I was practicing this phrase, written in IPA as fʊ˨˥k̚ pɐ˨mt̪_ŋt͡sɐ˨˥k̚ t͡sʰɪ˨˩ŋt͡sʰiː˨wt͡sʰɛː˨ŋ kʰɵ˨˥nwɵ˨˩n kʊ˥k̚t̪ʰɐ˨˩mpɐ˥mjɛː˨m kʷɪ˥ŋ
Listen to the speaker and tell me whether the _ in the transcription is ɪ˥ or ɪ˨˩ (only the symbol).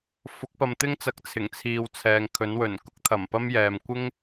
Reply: ɪ˥